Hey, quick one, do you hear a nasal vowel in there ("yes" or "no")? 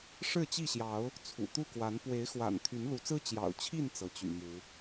no